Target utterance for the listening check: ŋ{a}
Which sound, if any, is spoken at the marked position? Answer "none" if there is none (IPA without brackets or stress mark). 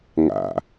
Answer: a̰